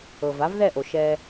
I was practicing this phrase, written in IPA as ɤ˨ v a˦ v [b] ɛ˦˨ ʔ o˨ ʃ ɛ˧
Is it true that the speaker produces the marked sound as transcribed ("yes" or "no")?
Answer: no